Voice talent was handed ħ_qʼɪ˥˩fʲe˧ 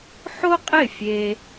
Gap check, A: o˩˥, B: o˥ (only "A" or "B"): B